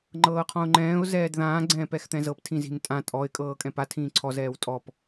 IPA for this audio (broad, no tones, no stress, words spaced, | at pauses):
ŋ͡ǃɤːqʰɔ̃ʊ̯ŋ͡ǃɛ̃ːʊ̯ zɛːdðãː ɡ͡ǀɛ̃ːpɛxt̪ɛ̃zɤp tʰĩzi̤ntʼã tʼɔɪ̯ kʼɤːkʼɛ̃pa tʰĩːǀʰɔz ɛːwtʼɔp